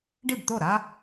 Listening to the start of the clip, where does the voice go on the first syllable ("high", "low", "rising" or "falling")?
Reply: falling